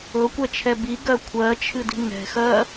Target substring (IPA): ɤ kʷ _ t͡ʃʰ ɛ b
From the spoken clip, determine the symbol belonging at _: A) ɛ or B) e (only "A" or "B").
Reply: A